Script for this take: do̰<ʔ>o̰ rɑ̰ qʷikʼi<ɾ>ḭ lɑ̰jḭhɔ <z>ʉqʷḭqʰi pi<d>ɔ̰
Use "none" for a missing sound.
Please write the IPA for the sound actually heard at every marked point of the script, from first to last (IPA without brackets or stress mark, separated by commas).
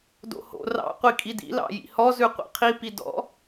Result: h, d, z, d